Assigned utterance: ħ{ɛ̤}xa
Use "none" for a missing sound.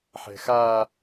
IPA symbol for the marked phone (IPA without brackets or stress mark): ɛ̤